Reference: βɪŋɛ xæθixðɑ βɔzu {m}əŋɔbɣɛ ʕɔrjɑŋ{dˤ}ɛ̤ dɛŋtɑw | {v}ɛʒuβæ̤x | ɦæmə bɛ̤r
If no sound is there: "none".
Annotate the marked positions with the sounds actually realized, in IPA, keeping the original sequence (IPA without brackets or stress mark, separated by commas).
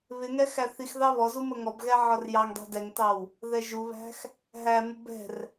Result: m, dˤ, ð